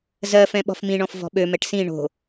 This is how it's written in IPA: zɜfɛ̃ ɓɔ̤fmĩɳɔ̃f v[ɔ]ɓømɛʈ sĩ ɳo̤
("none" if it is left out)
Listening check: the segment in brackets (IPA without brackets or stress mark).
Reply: ɔ̤